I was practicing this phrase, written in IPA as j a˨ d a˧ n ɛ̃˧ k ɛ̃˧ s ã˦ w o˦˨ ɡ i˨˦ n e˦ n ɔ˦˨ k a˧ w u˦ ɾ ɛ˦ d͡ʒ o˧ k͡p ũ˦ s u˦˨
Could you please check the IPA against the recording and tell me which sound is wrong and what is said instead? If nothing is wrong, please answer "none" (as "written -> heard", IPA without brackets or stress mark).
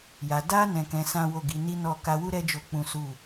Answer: e˦ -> i˦